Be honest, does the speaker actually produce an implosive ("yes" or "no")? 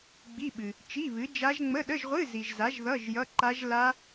yes